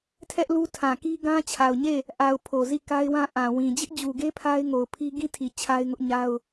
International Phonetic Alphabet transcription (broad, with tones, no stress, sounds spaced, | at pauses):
tʰ ɛ˦ ʔ l u˦ tʰ ã˨ k i˦ ɡ ã˦ t͡ɕʰ a˨ ʊ̯ ɲ e˦˨ | ʔ a˨ ʊ̯ pʰ o˨ z i˦˨ k a˦ ɪ̯ w ã˦ ʔ ã˨ w ĩ˨ d͡ʑ ɪ˦ ʔ d͡ʑ u˨ ɡ e˦ pʰ a˦ ɪ̯ ŋ o˨ ʊ̯ pʰ i˦ ɡ ĩ˦ tʰ i˨ t͡ɕʰ a˦ ɪ̯ ŋ ʊ˦ ʔ ɲ a˦ ʊ̯